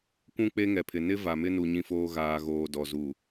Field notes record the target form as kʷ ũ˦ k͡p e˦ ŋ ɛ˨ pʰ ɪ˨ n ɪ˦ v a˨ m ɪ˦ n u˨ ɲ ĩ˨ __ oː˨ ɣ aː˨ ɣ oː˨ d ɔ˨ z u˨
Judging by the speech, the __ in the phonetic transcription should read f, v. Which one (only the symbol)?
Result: f